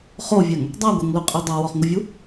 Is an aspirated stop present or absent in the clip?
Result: absent